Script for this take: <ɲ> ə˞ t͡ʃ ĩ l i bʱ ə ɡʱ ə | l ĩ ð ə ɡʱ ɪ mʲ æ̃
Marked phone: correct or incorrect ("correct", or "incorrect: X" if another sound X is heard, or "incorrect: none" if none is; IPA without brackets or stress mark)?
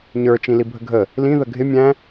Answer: correct